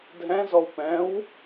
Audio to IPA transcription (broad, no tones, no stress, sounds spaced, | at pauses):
dʱ ɛ̃ z ɔ w p ɛ̃ w